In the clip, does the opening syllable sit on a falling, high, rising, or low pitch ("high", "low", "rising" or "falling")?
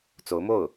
rising